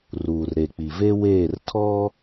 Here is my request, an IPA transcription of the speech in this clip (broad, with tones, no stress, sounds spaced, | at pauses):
r uː˨ r ɾ e˨ k͡p i˨ v e˦ w eː˦˨ r tʰ ɔ˦